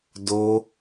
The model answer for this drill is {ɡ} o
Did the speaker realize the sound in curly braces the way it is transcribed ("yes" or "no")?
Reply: no